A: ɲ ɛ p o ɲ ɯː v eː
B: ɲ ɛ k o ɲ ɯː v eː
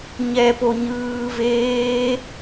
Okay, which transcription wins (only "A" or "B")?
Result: A